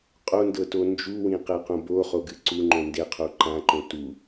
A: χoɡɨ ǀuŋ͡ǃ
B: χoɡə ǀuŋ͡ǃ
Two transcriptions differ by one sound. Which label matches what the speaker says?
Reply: A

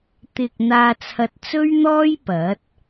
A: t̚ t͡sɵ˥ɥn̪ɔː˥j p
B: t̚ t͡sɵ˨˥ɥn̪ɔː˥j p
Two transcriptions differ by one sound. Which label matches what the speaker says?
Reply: A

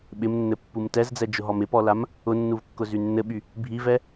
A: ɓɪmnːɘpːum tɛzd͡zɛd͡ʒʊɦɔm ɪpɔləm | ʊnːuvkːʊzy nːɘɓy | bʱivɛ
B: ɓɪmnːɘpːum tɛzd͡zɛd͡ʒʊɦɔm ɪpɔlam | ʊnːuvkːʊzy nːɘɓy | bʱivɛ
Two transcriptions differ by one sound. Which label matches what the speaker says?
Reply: B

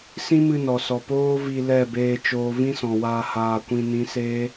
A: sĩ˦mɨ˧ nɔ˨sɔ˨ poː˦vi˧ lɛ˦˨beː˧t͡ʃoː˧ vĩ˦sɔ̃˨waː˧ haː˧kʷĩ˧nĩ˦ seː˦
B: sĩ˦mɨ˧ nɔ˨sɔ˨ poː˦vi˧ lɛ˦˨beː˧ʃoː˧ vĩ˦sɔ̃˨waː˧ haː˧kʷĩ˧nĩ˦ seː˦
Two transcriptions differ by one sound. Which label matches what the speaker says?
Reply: A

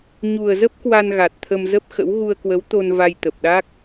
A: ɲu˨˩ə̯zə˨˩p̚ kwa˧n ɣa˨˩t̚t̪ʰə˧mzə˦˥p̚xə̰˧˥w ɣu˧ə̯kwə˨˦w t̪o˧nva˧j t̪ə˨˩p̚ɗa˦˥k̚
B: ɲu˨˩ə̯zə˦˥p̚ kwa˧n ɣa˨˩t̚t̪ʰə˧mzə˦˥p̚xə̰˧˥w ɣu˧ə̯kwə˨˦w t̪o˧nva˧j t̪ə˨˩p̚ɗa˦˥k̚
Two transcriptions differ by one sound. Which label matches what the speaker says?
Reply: B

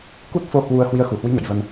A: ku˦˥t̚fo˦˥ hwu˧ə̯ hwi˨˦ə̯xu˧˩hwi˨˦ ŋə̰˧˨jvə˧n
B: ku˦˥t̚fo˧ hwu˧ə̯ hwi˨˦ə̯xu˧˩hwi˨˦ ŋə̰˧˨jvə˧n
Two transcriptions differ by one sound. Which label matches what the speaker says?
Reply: B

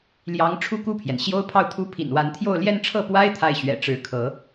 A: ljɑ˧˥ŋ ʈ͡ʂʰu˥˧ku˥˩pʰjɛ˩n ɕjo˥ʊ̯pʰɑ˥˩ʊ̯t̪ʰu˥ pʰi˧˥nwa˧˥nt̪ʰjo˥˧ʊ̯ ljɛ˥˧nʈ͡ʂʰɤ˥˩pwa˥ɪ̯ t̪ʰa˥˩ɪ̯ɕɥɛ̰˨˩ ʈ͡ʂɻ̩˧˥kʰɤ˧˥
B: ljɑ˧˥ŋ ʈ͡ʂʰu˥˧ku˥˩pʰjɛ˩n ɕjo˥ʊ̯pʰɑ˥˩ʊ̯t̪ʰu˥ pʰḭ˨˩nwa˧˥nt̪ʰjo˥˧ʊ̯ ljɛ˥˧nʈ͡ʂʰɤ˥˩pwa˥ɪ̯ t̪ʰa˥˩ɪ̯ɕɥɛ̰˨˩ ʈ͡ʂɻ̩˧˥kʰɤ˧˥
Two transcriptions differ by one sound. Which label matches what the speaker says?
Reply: B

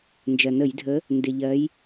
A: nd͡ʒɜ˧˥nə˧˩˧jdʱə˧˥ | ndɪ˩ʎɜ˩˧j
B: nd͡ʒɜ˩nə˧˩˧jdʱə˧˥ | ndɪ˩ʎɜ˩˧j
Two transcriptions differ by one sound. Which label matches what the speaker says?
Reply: B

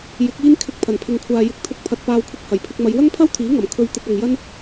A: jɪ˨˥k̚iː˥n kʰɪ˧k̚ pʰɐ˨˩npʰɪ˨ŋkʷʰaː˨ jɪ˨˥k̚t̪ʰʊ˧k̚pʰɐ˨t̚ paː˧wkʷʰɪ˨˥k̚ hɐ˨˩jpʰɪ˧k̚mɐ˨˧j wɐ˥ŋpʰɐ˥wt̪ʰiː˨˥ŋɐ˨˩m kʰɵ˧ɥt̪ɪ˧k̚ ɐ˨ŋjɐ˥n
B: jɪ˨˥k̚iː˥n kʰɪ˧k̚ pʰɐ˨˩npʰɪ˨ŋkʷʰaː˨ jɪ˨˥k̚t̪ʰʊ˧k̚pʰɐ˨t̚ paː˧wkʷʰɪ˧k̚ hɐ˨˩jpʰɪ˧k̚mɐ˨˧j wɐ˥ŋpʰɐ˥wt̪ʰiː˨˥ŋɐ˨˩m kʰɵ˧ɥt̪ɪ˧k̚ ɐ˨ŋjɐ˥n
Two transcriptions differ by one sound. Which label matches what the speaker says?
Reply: B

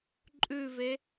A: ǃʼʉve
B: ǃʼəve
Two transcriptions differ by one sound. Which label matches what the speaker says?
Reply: A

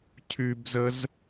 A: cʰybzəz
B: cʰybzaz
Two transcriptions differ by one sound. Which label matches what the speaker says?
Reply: A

